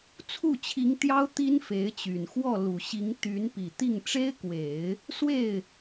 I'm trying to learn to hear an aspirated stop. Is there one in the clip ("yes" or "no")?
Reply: yes